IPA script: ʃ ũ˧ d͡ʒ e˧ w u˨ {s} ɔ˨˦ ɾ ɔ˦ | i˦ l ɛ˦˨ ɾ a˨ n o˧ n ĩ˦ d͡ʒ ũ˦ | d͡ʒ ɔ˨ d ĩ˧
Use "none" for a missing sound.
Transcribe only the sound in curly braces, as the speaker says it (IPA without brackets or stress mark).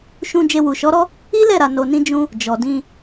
ʃ